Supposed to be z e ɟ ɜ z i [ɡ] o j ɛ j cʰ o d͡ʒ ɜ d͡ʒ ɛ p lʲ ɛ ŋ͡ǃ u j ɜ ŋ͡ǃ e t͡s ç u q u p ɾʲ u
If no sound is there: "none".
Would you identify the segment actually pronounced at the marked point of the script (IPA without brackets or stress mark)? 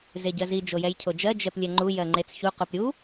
d͡ʒ